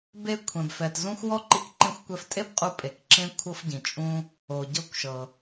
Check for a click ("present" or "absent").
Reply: present